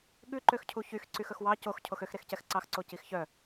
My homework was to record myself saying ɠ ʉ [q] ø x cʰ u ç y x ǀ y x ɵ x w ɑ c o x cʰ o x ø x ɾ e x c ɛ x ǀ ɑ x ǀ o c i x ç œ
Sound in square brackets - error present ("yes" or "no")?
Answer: yes